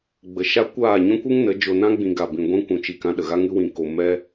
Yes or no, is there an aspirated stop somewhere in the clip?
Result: no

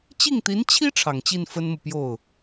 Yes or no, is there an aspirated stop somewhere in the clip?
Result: yes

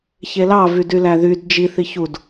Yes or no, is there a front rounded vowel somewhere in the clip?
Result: yes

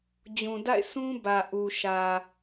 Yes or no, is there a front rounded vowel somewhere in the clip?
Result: no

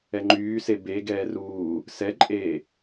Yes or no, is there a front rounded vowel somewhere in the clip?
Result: yes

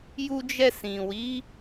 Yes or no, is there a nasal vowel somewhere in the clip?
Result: yes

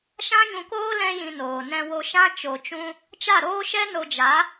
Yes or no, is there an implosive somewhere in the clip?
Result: no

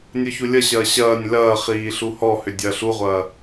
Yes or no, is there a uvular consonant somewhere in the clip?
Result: yes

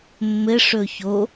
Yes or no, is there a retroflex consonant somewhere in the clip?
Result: yes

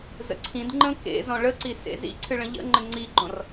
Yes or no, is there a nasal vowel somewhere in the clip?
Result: yes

